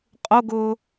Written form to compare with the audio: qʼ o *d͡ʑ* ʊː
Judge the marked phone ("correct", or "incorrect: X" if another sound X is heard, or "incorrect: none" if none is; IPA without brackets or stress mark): incorrect: ɡ